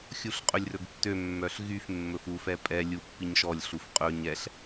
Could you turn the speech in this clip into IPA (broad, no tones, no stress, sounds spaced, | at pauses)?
xʲ u ɬ qʼ ɵ lʲ r ɵ ɡ tː ø mː œ ɬ ɣ y f mː ɵ f u f ɛ pʼ ɛ lʲ u pː i ɲ ʃ ɔ lʲ ɬ u f qʼ ɵ ɲ ɛ ɬ